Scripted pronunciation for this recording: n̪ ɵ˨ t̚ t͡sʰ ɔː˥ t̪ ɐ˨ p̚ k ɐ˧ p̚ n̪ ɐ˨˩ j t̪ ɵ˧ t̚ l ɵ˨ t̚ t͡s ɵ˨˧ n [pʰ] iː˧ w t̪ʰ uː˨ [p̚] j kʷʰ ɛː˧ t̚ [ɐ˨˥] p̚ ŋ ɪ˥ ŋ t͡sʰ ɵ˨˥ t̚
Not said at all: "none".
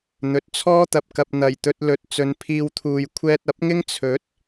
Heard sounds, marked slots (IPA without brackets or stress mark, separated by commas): pʰ, none, ɐ˨˥